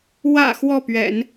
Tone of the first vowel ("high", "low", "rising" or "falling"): low